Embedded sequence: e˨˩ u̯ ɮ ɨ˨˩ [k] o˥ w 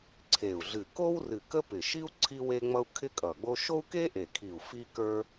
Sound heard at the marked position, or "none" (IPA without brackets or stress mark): k